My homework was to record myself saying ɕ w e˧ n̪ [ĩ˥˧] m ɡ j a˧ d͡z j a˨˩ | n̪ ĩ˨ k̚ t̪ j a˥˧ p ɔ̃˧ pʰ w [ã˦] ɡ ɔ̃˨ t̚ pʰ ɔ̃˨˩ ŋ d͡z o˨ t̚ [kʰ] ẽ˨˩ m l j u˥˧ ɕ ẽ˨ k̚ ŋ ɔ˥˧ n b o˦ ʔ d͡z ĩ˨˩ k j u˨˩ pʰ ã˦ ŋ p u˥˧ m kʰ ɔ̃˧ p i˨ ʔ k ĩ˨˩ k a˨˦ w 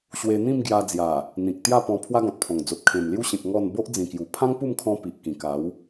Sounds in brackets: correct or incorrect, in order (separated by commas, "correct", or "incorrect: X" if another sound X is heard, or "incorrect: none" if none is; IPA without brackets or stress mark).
correct, incorrect: a˦, correct